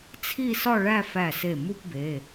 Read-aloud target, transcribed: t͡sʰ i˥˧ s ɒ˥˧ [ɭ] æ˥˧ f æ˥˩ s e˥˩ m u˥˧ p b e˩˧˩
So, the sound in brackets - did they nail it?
yes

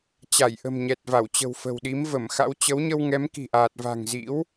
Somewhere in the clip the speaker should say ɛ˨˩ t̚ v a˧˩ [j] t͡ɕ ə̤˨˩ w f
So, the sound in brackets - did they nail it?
no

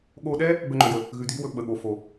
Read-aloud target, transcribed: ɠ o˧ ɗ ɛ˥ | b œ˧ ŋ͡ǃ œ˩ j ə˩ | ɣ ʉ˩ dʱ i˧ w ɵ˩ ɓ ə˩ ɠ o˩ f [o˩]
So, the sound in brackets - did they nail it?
yes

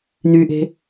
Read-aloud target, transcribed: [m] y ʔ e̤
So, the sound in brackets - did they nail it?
no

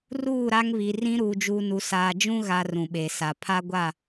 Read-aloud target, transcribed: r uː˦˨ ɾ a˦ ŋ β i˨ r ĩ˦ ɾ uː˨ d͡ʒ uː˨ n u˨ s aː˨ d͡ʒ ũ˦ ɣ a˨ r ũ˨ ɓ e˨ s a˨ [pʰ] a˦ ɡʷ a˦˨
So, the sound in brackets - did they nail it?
yes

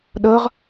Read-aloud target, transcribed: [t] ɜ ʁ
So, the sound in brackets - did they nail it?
no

